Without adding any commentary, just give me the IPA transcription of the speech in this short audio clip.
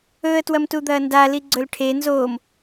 ɵ ə̯ t w ɐ m t u d̪ ɐː n d a l i ɡ͡ǀ ɵ l ʈʰ e n z oː m

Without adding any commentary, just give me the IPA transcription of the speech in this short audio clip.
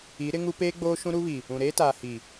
i˨˦ ɾ ɪ˦ ŋ u˦ p eː˦ ɡ͡b oː˦ ʃ ũ˦ ɾ u˦ β i˨ | ũ˨ ɾ eː˦ t aː˨ h i˨

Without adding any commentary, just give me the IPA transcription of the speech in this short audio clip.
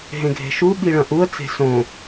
ɦ ẽ ɡʱ e̤ ʃ u ɓ i ɭ ɐ̃ ʔ u ə̯ t͡s e̤ s õ

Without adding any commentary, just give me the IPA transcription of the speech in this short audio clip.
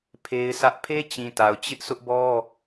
pʰ e˦ ɪ̯ s ä˦ ʔ pʰ e˦ t͡ɕ ĩ˨ t a˨ ʊ̯ t͡ɕ ɪ˦ ʔ s ʊ˦ ʔ b ɔ˦

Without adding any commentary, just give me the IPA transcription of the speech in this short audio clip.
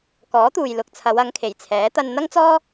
k ɔː˨˥ t̪ uː˨ j l ʊ˨ k̚ t͡sʰ ɐ˨˧ w ɐ˨˧ ŋ kʰ e˨˩ j t͡sʰ ɛː˨˥ t̪ ɐ˧ n n̪ ɐ˥ ŋ t͡s ɔː˥

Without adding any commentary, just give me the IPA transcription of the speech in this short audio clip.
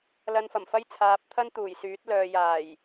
l ɐ˧ n f ɐ˨˩ m f ɐ˥ j t͡sʰ aː˨˥ p̚ t̪ʰ ɐ˥ n t̪ uː˨˩ j s yː˨˥ t̚ l œː˨ j aː˨˩ j

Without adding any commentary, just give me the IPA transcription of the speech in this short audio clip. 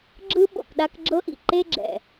ɡ͡ǁ ɯ˦ ɓ o̰˨ k ɗ a˦ k ɡ͡ǁ ɤ˦ ʔ ḭ˩ ǃ e˥ ɡ͡ǁ ɛ̰˨

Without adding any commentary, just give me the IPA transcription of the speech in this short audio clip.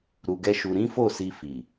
ɾ u˧ ɡ ɛ˦ ʃ u˧ ɾ ĩ˦ f o˦˨ s i˧ f i˨

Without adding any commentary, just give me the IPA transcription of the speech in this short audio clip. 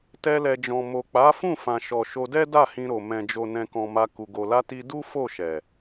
t ɛ˧ l ɛ˨ d͡ʒ ɔ̃˨ m o˨ k͡p a˨˦ f ũ˦˨ f ã˨ ʃ ɔ˨ ʃ o˧ d ɛ˦ d a˦˨ h ĩ˧ ɾ o˨ m ɛ̃˨ d͡ʒ o˨ n ɛ̃˨ k ɔ̃˨ m a˧ k u˨ ɡ o˨ l a˧ t i˧ d u˦ f o˦˨ ʃ ɛ˨

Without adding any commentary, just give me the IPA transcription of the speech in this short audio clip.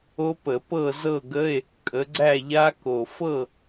o˦˥ p ə˧˩˧ p ɤ˥˨ z ɤ˥˨ ɡ ə˧˥˧ e̯ | kʼ ə˨˦ ɡ͡ǀ æ˥˨ ʎ a˦˥ k o˨˩ f ɤ˥˨

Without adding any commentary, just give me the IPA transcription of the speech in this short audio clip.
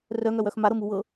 r œ ŋ œ w œ x m a ɾ ɤ m u w ɤ

